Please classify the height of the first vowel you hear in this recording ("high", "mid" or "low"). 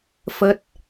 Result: mid